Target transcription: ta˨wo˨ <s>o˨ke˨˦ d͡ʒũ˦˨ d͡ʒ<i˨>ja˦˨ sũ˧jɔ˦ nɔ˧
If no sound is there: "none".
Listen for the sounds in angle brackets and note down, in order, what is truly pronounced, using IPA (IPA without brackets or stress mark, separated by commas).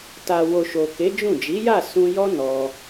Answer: ʃ, i˨˦